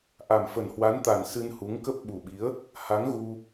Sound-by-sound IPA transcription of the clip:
ʔ a˨˩ m f ə˨˩ n h w a˨˦ n t̪ a˨˩ n s ɨ˧ n h u˨˦ ŋ k ə˦˥ p̚ ɓ u˨˩ ɓ i˨˦ ə̯ | h a˨˦ ŋ ɣ u˧

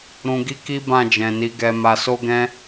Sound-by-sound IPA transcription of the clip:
ɾ ũ˨ ɡ i˧ k i˦ b ã˦˨ d͡ʒ ɛ̃˨ n i˨˦ ɡ ɛ˧ m a˧ s o˦ ɡ ɛ̃˦

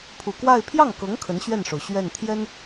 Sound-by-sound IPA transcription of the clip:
pʰ u˨˩ k w a˥˧ ɪ̯ pʰ j ɑ˥˩ ŋ k ɤ˧˥ ŋ kʰ ə˧˥ n ɕ ɥ ɛ˥˩ n ʂ o˩ ʊ̯ ɕ ɥ ɛ˥˩ n t̪ʰ j ɛ˥ n

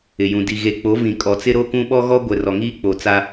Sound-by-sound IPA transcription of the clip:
ɪ˨ j ũ˨ d i˨ ɣ e˨ k͡p o˨˦ v ĩ˨ kʼ ɔ˨ t͡s ɪ˦ ɾ o˦ k ũ˦ ɓ ɔ˦ ɣ ɔ˦ ɡʷ ɛ˨ r ɔ˨ ŋ iː˦ k͡p o˨ t͡s a˦

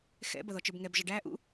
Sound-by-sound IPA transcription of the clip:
x ɛ̰ b ʌ ð ɔ t͡ʃ ə˞ b ŋ ɛ b ʒ ʌ ɖ æ ʔ ṵ

